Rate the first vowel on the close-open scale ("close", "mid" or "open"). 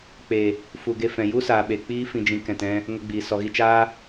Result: mid